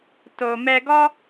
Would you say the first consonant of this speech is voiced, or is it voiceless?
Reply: voiceless